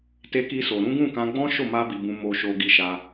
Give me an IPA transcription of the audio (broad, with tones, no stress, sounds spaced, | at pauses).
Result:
t e˧ k i˧ s o˨ ɾ ũ˨˦ ɡ ũ˦˨ k ã˧ ɡ͡b ɔ̃˦ ʃ o˦˨ m a˧ b i˨ b ũ˨ m o˧ ʃ o˧ ɡ i˧ ʃ a˧